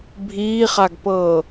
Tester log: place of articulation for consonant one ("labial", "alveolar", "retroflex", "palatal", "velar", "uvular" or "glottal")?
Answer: labial